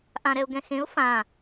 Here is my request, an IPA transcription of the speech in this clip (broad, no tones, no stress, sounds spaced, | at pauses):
ʔ ã ɾ ɛ ʊ̯ ɡ ɛ̃ x ẽ ʊ̯ f ã